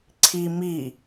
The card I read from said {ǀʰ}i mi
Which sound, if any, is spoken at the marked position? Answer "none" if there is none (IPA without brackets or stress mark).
ǀʰ